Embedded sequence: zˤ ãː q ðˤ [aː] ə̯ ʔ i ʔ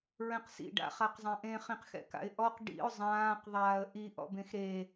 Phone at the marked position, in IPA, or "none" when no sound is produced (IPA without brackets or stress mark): aː